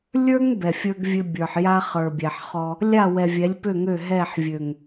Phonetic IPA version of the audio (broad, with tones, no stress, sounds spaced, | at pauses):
lʲ ə˞˦ ŋ b ɛ˨ fʲ ə˞˦ ɡ vʲ ø˦ bʲ ə˞˨ ħ j a˦ χ ə˞˨ bʲ ɛ˨ ħ χ ɔ˦ | lʲ a˦˨ w ɛ˨ vʲ ɛ˨˦ lʲ p ø˦˨ ŋ ø˦˨ ɦ ɛ˦˨ ħ vʲ ø˨ ŋ